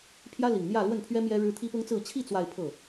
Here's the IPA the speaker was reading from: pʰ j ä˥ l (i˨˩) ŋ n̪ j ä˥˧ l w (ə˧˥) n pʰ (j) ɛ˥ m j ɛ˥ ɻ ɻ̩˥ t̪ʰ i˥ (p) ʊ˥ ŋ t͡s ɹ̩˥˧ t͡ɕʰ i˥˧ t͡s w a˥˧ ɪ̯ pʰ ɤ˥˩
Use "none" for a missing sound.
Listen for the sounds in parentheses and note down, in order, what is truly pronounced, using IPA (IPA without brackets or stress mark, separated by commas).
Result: i˨˩, ə˥˩, ɥ, p